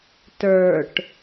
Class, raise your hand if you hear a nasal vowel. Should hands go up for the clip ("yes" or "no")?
no